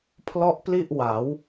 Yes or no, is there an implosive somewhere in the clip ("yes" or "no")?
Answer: no